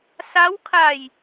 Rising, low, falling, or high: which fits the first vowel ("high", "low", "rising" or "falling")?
rising